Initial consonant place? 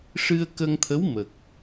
retroflex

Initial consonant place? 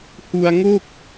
glottal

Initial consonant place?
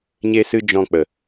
palatal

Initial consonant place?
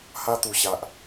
glottal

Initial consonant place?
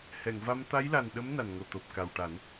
glottal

